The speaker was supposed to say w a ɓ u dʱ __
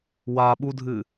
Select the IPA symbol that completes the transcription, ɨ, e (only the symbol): ɨ